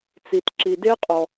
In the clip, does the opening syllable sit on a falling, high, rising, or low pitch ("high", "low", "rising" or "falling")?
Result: low